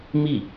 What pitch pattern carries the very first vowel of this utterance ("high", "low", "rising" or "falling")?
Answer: falling